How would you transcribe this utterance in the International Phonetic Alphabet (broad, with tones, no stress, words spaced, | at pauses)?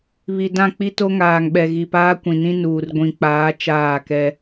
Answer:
βi˨dã˦˨ k͡pi˦to˦ŋaː˨ŋɓɛ˨ ɣi˨paː˦kʷĩ˨nĩ˦ nuː˨r ɡʷĩ˨k͡paː˨˦ t͡ʃaː˦˨kɛ˦